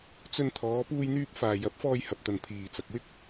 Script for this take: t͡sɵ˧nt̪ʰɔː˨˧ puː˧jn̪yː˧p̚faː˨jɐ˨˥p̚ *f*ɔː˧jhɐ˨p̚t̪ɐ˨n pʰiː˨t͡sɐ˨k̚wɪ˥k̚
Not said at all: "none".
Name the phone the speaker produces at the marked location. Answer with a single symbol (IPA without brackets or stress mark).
f